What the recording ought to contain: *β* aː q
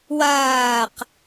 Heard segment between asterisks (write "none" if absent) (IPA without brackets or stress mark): w